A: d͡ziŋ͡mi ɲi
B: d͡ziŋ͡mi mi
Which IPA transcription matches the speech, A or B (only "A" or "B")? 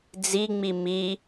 B